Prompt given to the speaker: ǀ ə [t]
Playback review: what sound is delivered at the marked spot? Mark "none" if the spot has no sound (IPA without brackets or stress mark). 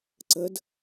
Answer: d